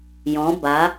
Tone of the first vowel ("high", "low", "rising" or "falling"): rising